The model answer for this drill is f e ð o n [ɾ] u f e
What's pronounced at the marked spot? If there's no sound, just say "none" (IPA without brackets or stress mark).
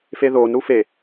ɾ